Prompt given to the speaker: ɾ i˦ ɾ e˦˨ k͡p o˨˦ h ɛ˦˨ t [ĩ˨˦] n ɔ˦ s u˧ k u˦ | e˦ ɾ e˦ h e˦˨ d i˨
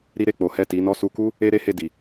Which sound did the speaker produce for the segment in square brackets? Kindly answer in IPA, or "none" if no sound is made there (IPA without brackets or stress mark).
i˨˦